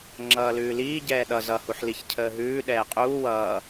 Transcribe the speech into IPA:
ŋ͡ǁ ʌː l ʉː l iː ɟ ɛː ɗ ʌ z ʌ h u ħ l i ç cʰ əː ɦ ʉː ɗ ɛː qʼ uː w ʌː

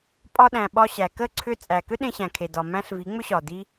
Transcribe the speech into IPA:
pʼ ɒ˧ ɗ æ̃˨ ɓ ɒ˧ ɕ æ˨ k ə˦˨ ǀʰ ʏ˧ t͡sʼ æ˨ k ʏ˦ ɗ ẽ˧ ɕ æ̃˨ kʰ e˨ d ɒ˨ m æ̃˦ ɬ v i˨˦ ŋ͡m ʏ˦ ɕ ɒ˨ d i˦

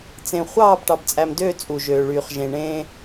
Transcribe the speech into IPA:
t͡s ẽ˨ χʷ ɑː˦˨ b ʈ ɑ˨ b t͡sʼ æ˨ m d øː˦˨ t͡sʼ u˨ ʒ øː˨ ɭ yː˨ χ ʒ ẽ˨ ɳ ẽː˦

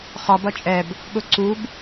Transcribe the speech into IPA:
χ ɒ b ʌ t͡ʃʼ ɛ b | ɠ ʊ ǀ u b

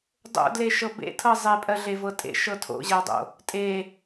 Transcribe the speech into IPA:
dˤ o̰ d l e ʃ ɤ b ḛ tʰ ɤ zˤ e pʼ ɜ ɮ e v ɤ tʼ ḛ ʃ ɤ tʰ o̰ ʑ ɜ dˤ o̰ | tʼ e

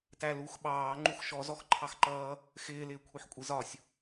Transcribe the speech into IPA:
t æ l u x ɓ ɑː ŋ͡ǃ u x ʃ ɔ z ɔ x ǃʰ ɑ x ǃ ʌː | x ɪː l ɪː kʷʰ i ħ kʷʼ i z ɒ sʲ

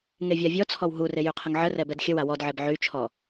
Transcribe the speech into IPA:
ŋ e vʲ a vʲ ɔ t͡sʰ ɔ w ɦ u r e j y qʰ ə ŋ ʕ ə r ɛ b ɛ d xʲ ə w a w ɔ d ʕ e b ʕ y t͡ʃʰ ɔ

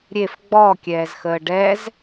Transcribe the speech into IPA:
ɾʲ e f ɡ͡b ɔ kʲ ɛː z x əː ɖ ɛ z

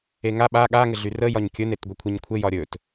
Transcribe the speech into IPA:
e ŋ a ɓ a ɠ a ŋ ɘ ɮ y r ə j ɒ ɲ kʲ ɵ n e t ɡʷ ɘ kʷʰ e ɲ kʷʰ ɘ j ɒ ɾʲ ɵ t

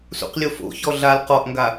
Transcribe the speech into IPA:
s ṵ q lʲ o f o̰ ç ɔ ɮ a l q ɔ ʔ ŋ ɡ a

